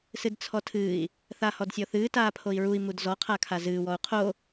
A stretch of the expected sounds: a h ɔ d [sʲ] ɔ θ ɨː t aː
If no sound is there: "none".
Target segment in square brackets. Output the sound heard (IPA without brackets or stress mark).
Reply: sʲ